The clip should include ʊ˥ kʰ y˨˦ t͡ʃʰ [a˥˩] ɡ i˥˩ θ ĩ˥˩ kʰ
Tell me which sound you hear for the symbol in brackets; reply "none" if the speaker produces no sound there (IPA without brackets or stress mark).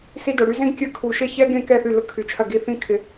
ɐ˥˩